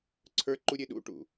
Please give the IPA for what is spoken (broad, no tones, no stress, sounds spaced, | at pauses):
ǀʰ ə˞ ǃ u ɾʲ e ɗ ṵ ʈ ṵ